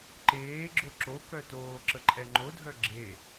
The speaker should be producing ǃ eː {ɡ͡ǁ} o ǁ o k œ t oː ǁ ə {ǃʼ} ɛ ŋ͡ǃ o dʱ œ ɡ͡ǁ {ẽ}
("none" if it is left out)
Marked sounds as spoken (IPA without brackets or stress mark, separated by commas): ɡ͡ǁ, ǃʼ, e